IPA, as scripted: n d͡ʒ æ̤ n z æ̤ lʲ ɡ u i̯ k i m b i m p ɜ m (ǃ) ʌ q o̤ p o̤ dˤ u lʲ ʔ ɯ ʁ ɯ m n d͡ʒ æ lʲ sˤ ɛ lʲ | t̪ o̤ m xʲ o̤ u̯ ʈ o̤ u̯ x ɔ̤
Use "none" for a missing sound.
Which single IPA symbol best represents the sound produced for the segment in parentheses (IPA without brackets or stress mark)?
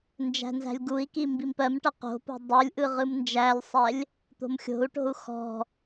ʈ